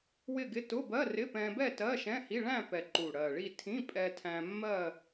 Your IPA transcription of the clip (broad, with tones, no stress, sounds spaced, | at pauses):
w ɪ˥˧ ɡ ɪ˧˥˧ t ʊ˧˥˧ b ɜ˧˥˧ r ɪ˧˥˧ p ɛ̃˧ b ɛ˥˧ t ɜ˧˥˧ ʃ ɛ̃˧˥˧ h i˧˥˧ ɭ æ̃˥˧ p ɛ˨˩ ǃ u˨˩ ɽ ɜ˨˩ ɭ i˥˧ tʰ ĩ˧˥˧ pʼ ɛ˧ tʰ æ̃˧ mː ɜ˥˧